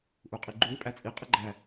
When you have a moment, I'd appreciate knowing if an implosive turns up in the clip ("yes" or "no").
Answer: no